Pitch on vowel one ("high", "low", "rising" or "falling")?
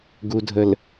low